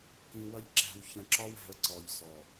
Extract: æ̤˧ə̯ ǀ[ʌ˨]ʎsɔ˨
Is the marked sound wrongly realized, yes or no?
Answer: yes